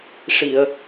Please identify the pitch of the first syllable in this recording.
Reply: low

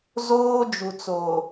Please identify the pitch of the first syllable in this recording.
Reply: high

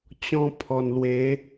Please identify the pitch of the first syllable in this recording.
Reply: high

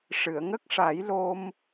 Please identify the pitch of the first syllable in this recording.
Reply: low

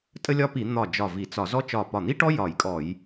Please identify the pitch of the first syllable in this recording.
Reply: high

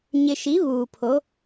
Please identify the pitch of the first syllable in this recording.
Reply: low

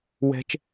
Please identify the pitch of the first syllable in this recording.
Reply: high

